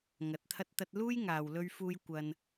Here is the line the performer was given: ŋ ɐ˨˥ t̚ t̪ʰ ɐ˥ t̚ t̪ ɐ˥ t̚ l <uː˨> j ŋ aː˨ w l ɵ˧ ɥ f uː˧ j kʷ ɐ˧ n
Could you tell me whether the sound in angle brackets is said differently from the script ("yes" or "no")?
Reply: yes